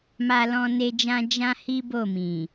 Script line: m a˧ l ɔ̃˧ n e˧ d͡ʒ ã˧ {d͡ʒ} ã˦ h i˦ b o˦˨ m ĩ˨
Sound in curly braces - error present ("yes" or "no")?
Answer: no